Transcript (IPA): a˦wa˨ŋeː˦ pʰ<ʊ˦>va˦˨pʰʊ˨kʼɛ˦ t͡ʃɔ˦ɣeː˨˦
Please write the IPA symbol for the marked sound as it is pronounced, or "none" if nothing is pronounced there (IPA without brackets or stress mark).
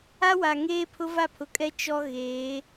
ʊ˦